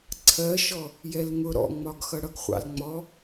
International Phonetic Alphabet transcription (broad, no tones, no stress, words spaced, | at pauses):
ǀʰɜʃɔ | jɛlŋʊ ɾɔ̰ŋ͡mɒɡxʌ ɽʌɡχʷɑ̰lŋ͡mɔ